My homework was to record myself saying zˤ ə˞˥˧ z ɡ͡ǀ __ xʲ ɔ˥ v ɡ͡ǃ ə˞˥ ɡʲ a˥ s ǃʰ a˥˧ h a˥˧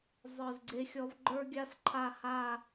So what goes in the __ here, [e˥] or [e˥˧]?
e˥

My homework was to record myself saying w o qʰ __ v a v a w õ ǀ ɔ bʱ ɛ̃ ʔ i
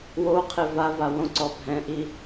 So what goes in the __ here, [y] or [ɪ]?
ɪ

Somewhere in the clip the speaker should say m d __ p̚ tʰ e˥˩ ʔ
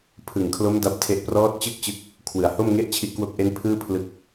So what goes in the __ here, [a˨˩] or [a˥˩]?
a˥˩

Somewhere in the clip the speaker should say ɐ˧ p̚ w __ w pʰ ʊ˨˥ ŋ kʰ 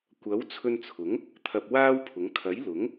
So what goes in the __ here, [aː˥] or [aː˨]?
aː˥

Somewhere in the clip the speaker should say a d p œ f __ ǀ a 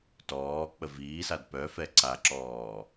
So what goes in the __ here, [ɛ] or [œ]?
ɛ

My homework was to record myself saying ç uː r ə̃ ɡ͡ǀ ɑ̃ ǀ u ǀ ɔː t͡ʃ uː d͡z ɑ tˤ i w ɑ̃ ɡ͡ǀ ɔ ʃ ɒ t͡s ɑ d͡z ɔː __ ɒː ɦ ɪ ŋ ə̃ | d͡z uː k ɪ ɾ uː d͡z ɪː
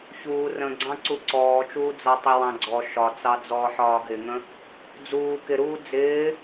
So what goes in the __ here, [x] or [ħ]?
ħ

